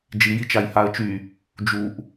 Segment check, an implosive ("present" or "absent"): absent